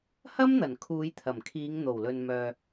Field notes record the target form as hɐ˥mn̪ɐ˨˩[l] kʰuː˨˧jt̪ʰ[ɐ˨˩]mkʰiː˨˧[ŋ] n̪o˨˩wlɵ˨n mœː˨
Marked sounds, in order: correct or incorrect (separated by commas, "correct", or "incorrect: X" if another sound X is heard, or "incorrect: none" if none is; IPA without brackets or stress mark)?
incorrect: n, correct, correct